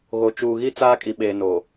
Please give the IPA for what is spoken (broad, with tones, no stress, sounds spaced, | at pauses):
ɣ o˨ t͡ʃ uː˨ ɣ i˦ t͡s aː˦ kʼ i˨ ɓ eː˨ n o˨